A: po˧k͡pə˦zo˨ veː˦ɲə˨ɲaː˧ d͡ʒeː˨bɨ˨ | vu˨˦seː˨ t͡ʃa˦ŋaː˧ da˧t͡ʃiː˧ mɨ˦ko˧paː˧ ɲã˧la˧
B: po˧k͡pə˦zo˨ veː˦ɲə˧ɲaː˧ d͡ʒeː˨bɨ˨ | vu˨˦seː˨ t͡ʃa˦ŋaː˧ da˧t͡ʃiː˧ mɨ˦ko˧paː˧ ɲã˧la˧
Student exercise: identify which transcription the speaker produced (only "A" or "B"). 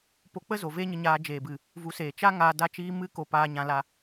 B